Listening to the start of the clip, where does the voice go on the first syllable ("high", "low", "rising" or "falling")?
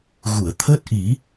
low